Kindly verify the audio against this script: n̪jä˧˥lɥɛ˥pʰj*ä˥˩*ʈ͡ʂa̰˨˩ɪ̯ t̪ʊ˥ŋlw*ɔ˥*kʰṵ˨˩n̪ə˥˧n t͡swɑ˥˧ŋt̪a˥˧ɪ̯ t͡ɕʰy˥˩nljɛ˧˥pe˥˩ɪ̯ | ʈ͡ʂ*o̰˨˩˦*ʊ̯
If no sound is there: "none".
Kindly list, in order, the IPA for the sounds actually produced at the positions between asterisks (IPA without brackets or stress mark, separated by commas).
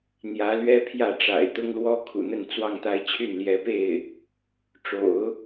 ä˥˩, ɔ˥, o̰˨˩˦